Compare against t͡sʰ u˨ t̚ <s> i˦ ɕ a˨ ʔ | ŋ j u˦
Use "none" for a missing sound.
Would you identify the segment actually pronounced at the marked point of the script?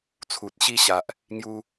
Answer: ɕ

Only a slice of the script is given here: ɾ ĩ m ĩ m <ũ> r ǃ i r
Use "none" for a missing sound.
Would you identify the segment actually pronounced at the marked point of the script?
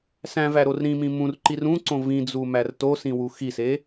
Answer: ũ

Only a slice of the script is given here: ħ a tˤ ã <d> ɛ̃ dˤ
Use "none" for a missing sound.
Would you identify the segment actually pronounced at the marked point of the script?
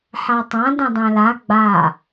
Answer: d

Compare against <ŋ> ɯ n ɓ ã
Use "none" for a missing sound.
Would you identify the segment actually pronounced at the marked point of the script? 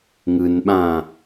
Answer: ŋ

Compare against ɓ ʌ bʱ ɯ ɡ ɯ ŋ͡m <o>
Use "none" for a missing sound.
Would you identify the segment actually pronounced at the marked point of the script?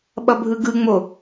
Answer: o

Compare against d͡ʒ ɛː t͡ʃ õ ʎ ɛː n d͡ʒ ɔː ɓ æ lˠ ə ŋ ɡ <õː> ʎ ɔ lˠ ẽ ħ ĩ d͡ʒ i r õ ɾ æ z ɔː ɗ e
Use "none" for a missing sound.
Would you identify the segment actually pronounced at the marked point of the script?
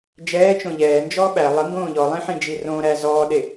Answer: õː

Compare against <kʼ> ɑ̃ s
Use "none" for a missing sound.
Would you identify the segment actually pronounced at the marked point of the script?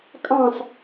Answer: kʼ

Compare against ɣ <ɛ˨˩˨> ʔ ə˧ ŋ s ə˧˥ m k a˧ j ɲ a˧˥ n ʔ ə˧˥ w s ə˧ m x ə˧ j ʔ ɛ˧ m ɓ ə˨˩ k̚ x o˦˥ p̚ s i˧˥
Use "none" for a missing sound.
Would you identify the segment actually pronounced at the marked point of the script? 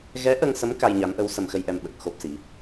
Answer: ɛ˧˥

